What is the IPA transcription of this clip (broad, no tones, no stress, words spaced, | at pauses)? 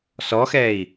sɔxɛːi̯